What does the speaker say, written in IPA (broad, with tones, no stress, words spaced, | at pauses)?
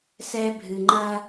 sɛ˦bʱɨ˨ŋ͡ǃɐ˦